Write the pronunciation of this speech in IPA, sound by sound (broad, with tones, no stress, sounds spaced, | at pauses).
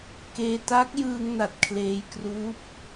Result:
k eː˧ t a˦˥ k̚ j ɯː˧ ŋ n a˨˩ t̚ kʰ l eː˧ j k r uː˦˥ p̚